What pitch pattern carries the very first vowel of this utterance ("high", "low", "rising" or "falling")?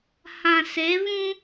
low